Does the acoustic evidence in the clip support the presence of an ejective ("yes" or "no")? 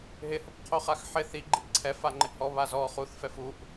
no